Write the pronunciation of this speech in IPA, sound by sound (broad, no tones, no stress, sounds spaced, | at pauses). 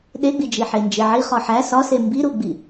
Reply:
ɗ e ɡ͡b i d͡ʒ i ħ e n d͡ʒ e ʕ i χ ɒ ħ æ s ɒ s e m b i ɾ u ɡ͡b i